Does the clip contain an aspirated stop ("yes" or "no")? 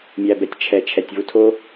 yes